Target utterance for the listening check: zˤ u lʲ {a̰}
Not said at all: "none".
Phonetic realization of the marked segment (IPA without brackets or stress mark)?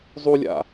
a̰